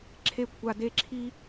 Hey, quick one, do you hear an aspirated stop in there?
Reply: yes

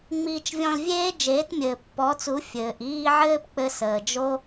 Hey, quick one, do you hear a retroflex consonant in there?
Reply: no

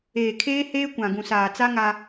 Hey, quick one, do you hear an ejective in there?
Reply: no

